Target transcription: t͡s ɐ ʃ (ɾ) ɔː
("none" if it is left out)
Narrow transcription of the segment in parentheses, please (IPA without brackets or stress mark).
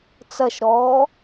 ɾ